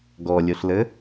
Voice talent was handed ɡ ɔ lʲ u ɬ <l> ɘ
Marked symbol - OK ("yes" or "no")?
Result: yes